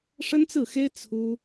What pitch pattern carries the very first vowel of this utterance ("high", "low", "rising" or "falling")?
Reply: high